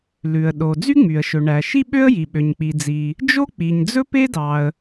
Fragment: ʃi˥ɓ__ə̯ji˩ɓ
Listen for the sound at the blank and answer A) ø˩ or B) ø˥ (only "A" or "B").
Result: B